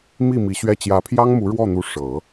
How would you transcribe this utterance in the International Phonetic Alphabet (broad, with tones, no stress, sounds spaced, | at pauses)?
m i˥˩ m i˧˥ ɕ ɥ ɛ˥˩ t͡ɕ j ä˧˥ pʰ j ɑ˥ ŋ m u˧˥ ɻ w ɔ˥˩ n̪ u˧˥ ʂ ɤ˨˩˦